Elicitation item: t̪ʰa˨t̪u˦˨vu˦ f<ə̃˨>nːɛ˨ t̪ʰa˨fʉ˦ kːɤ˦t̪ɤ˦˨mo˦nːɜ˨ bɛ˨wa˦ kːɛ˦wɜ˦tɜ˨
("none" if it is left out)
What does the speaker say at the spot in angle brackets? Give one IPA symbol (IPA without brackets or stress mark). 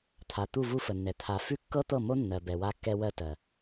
ə˨